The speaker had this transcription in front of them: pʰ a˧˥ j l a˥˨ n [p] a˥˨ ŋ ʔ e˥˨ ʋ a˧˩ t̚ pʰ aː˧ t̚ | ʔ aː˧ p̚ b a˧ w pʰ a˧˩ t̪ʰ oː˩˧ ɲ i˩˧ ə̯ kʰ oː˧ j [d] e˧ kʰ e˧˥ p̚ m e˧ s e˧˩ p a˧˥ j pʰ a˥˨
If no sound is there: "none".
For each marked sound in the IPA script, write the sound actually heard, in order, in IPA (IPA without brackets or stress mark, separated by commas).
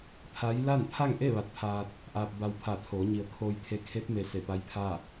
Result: pʰ, t̪ʰ